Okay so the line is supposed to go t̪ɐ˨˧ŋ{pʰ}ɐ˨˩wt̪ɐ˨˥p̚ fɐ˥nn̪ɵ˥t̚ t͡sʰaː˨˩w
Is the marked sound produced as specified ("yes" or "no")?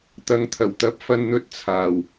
no